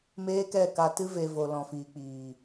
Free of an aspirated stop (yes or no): yes